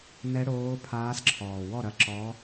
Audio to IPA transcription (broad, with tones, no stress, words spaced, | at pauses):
nɛ˧˥ɽoː˧˥pʰaː˧˥sǁʰɔː˨˩ wɔ˥˩ɾɐ˧˥ ǁɔ˧˥